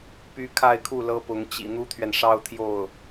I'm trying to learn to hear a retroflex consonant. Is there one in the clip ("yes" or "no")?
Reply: yes